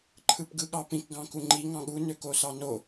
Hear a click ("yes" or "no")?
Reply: yes